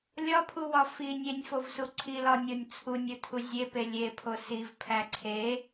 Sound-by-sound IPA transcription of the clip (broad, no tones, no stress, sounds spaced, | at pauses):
lʲ ɒ pʰ u w ɒ f i nʲ e nʲ f o v s u ǀʰ i l ɒ nʲ o nʲ t͡sʰ u nʲ u tʰ u zʲ e p e lʲ e pʰ o s i v pʰ æ ǀʰ e